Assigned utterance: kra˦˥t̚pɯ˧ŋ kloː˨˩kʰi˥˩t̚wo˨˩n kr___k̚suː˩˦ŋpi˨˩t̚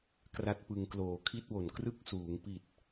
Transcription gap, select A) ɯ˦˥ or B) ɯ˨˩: A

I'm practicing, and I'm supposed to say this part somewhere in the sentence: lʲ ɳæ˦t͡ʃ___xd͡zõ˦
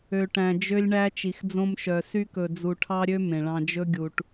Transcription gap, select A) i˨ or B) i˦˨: A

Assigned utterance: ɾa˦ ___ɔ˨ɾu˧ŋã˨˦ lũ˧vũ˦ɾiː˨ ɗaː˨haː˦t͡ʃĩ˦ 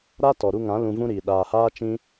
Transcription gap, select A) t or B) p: A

